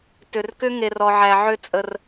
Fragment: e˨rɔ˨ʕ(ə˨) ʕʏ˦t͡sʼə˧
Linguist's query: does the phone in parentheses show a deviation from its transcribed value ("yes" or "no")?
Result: yes